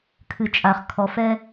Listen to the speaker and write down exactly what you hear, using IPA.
kʰ ɨ˩ t͡ʃʼ a˩ χ kʰ ɔ˩ f ɛ˧

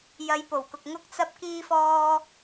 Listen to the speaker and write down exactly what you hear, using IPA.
j ɐ˨˧ j p o˨˩ w k ʊ˨ k̚ ŋ ʊ˥ k̚ t͡s ɐ˥ p̚ k iː˥ f ɔː˥

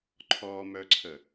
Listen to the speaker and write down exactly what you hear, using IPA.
ǃʰ ɔ m œ ǀʰ ə

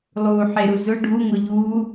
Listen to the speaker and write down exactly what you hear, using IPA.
lˠ uː ħ e ɾ u z ʊ ɖʱ u ŋ ʊ ʎ uː

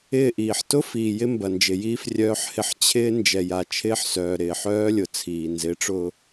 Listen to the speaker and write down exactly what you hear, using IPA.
ɪː˦˨ ʔ iː˨ ħ t ʊ˦ f iː˨ j ɪ˦ m b ɐ˨ n d͡ʒ ɪ˨ j iː˦ f rʲ œː˦ ħ h ɪ˦ ħ t͡ɕʰ ɪː˦ n d͡ʒ ɛ˨ j a˨ t͡ʃʰ ɪː˦ ħ s œː˨ ɾ ɪː˨ ħ œː˦ lʲ ʊ˨ t͡sʰ iː˨ n z ɪ˨˦ ʈ͡ʂ ʊː˨

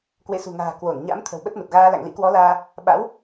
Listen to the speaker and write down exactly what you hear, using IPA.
k w ḛ˧˨ s ṳ˨˩ ŋ a̤ː˨˩ k w o˧˩ n ɲ a̰˧˥ m t̪ʰ ə̤˨˩ w ɓ ə˦˥ t̚ m ə˨˩ t̚ ɣ aː˧ l a̰˧˨ ŋ l ḭ˧˥ k w ɔ˨˦ l aː˧ | ɓ a̰˧˥ w

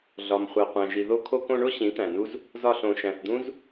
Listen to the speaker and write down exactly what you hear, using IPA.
ɮ ɒ˨ m χʷ æ˨ qʷ æ̃˨ ʒ i˨ ð o˧ kʰ o˧ k õ˧ ɳ o˦ ɕ ĩ˨˦ t̪ æ̃˨ n u˦ z | z ɒ˧ ɬ õ˨ ʃ æ̃˨ θ d̪ ũ˦ z

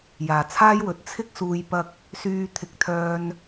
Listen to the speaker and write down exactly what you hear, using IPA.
j aː˨˩ t͡sʰ aː˥ j w ɵ˨ t̚ t͡sʰ ɪ˥ k̚ s uː˨ j p ɐ˧ k̚ | s yː˧ t̪ʰ ɪ˨ k̚ t̪ʰ œː˧ n

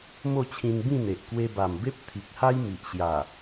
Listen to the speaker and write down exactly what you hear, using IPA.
m o˥˧ t͡ɕʰ ĩ˧ n b ĩ˥˧ n̪ e˨ ʔ k w e˧ b a˨˩ m b e˦ p̚ t̪ʰ i˨ k̚ h a˦ j m i˨ ʔ ɕ j a˨˩

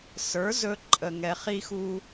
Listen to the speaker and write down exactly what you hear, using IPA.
s ə˞˨˦ z ɵ˧ ǃʼ ə˧ ŋ ɛ˧ χ i˦ x u˦

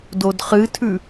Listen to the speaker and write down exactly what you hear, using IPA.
d o d χ ɨ tʰ ʉ

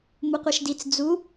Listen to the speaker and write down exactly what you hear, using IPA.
m u qʷ e ʃ d i t͡s d͡z u

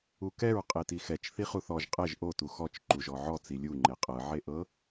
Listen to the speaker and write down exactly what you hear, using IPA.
u k ɛ ɹ qʼ e t i x ɛ t͡ʃ θ i χ u θ ɔ ʒ qʼ ɛ ʒ ʔ o t u x ɔ t͡ʃ ǃ u ʒ ɔ ʕ ɔ t͡s i lʲ u ŋ͡ǃ e qʼ ɤ ʕ e ʔ ɤ

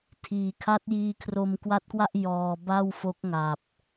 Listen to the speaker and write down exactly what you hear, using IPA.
tʰ iː˨˩ kʰ a˦˥ t̚ j iː˧ kʰ r o˧ m k w a˦˥ t̚ k w a˥˩ ʔ j ɔː˧ b a˥˩ w f o˦˥ k̚ ŋ a˨˩ p̚

